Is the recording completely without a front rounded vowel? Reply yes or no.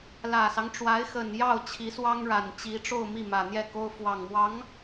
yes